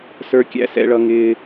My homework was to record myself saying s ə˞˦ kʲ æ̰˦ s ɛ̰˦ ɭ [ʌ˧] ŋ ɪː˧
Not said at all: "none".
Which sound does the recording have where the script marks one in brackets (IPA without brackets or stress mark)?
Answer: ʌ˦